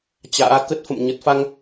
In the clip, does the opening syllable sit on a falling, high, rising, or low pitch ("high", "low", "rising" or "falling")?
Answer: rising